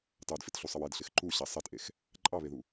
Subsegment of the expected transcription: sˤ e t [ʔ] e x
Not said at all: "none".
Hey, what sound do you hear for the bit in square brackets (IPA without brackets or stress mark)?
ʔ